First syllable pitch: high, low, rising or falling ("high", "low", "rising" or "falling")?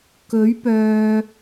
rising